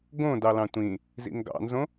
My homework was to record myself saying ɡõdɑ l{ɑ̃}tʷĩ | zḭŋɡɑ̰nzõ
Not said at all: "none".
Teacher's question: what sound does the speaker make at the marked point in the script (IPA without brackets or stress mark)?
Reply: ɑ̃